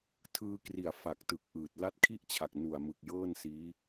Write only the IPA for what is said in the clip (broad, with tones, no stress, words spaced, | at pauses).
tʰɯː˧kri˨˩a̯ fa˨˩k̚ tɯ˨˩k̚ʔɯː˨˩t̚ la˦˥t̚kʰi˥˩ʔt͡ɕʰa˨˩k̚ nu˨˩a̯mɯ˨˩k̚jɤː˥˩nsiː˦˥